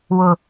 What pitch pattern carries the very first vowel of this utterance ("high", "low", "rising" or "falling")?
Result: low